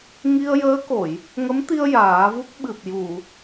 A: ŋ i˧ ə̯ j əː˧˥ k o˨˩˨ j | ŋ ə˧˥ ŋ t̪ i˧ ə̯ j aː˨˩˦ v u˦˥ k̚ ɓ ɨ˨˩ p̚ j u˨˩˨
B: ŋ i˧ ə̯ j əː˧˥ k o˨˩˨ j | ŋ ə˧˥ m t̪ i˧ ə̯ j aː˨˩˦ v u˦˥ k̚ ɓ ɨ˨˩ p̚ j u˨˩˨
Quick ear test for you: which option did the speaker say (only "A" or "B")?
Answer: B